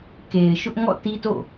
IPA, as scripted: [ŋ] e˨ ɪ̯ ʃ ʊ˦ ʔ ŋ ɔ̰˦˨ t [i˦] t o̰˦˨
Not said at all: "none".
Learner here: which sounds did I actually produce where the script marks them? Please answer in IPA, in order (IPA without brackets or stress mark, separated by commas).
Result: k, i˦